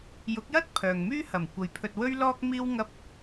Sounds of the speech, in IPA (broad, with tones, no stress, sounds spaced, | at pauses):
j ʊ˨˥ k̚ j ɐ˥ t̚ pʰ œː˨ ŋ m yː˥ h ɐ˨˩ m kʷ ɐ˨˧ j pʰ ɵ˧ t̚ w ɵ˥ ɥ l ɔː˥ k̚ m iː˥ w ŋ ɐ˥ p̚